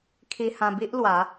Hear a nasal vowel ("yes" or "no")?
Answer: yes